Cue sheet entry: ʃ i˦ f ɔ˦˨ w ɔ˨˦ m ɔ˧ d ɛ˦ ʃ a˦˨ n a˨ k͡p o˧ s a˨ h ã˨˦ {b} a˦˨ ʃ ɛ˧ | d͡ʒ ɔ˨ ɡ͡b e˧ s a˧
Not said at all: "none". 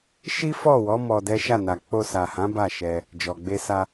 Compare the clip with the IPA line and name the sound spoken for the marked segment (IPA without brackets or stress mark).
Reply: b